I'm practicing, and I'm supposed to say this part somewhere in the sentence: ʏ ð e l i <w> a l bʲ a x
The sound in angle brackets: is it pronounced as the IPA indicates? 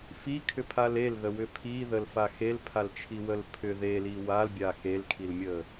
yes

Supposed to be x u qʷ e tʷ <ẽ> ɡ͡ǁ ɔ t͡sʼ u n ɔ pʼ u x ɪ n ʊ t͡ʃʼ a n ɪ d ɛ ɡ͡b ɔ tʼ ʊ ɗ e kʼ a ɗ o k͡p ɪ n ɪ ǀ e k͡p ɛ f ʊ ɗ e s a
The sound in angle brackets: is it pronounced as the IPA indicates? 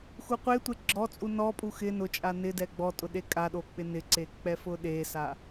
no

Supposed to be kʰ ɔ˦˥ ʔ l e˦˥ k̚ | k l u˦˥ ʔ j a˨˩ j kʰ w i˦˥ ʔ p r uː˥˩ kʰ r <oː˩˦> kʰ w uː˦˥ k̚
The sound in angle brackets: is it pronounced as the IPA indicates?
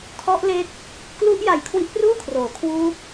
yes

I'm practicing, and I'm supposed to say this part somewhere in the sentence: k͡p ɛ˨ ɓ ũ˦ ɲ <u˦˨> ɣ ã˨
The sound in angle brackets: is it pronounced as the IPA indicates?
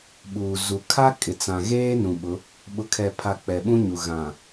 no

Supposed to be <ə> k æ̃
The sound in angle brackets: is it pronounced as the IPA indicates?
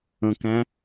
no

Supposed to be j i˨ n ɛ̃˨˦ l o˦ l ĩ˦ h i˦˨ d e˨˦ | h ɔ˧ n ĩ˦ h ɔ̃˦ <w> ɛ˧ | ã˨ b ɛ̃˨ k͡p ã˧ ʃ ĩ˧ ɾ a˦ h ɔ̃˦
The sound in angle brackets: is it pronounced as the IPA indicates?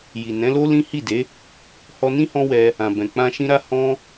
yes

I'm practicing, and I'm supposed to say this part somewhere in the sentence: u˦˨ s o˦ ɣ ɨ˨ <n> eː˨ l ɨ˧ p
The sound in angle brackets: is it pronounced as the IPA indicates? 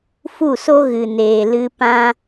yes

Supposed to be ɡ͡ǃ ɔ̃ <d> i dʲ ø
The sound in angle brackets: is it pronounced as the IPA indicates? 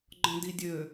yes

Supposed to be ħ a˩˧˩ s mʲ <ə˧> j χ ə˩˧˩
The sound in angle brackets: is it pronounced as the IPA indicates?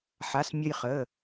yes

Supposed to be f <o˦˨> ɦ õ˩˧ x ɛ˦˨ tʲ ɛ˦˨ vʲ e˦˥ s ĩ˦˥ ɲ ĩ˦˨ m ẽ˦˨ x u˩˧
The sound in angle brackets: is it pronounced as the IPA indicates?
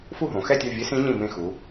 no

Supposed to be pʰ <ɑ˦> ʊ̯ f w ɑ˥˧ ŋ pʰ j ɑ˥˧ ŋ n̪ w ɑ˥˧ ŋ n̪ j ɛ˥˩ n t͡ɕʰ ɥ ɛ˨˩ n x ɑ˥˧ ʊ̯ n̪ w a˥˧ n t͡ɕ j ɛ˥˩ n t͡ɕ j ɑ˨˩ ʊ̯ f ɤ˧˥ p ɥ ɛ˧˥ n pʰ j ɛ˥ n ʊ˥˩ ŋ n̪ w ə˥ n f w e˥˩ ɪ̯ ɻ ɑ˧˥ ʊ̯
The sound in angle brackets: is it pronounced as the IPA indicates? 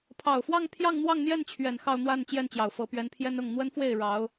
no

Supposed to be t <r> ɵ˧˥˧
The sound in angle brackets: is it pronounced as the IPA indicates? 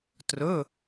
yes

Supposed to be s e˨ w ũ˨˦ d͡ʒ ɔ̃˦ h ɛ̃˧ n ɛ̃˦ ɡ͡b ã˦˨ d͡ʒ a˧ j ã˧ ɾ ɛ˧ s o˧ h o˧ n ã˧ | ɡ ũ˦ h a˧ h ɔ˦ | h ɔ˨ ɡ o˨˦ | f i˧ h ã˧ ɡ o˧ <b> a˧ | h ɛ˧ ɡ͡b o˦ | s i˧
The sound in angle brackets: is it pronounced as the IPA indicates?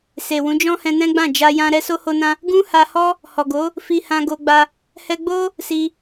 no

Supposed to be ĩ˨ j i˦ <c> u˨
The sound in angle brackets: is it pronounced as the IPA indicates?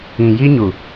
no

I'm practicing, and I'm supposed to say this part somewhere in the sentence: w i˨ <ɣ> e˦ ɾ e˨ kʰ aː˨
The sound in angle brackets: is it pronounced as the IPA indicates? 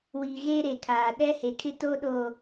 yes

